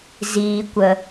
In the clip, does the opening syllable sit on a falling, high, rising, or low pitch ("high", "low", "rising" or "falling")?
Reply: low